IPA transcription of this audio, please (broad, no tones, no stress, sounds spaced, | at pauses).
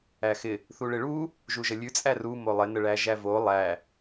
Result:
æ x ɪ | θ u ɭ ɪ ɭ u | ʒ u ʒ ə lʲ ʉ t͡sʼ æ r u m o lˠ ɪ n ə ɭ æ ʒ æ v o lˠ æ